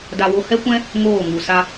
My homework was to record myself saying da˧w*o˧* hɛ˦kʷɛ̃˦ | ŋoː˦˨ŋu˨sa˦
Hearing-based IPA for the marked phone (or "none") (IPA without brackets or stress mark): o˧